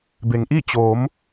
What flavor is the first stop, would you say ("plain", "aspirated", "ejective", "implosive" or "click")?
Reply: plain